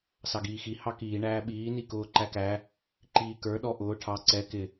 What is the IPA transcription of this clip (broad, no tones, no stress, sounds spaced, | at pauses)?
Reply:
s ɑ ɡ iː x i h ɑ k iː ɳ æː ɓ iː n i k ʊː ǃ æ k æ | ǃ iː k ə˞ ɗ ɔ ʔ ʊː ʈʰ ɑ ǀ ɛ k ɪ